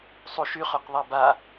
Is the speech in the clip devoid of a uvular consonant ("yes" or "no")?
no